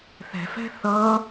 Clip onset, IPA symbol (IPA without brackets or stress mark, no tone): θ